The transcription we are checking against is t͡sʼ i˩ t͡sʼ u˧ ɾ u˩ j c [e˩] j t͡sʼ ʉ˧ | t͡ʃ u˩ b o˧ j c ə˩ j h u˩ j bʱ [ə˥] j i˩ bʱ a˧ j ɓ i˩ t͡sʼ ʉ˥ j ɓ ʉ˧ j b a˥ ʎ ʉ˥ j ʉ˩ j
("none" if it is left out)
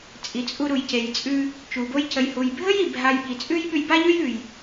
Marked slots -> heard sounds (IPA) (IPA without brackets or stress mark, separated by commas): e˩, ə˥